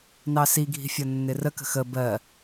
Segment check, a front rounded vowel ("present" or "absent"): absent